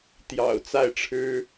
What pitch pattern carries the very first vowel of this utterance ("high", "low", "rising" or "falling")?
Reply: low